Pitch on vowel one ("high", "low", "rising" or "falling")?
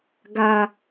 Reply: high